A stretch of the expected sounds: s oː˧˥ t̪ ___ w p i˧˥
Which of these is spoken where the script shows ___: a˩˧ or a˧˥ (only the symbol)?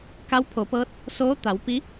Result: a˩˧